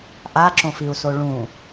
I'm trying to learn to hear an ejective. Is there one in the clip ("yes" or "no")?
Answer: no